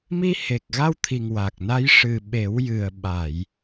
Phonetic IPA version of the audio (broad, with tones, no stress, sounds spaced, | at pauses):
m i˧ h e˨˩ k̚ ɣ a˧ w t̪ʰ i˨˩ ŋ w a˨˩ k̚ n a˧˥ j ʂ ɨ˨˩ ɓ e˨˩˦ w j ɨ˨˩ ə̯ ɓ a˨˩˨ j